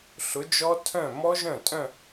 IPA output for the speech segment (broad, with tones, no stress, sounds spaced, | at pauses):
ɬ ʊ˨˥ d͡ʒ ɔ˦˥ tʰ œ̃˥˩ m ɔ˦˥ ʒ œ̃˥˩ tʼ œ̃˥˧